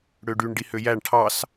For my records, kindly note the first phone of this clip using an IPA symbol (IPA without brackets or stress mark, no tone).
ɽ